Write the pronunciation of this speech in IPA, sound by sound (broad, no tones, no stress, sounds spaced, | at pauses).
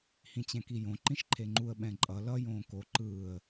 h ĩ t͡ɕ ɛ̃ k i j õ ǃ ĩ ʃ ǃʰ e ŋ͡ǃ u ə̯ ɓ ɛ̃ ǃʼ ʌ l ʌ j õː k o ǃ ɯː ə̯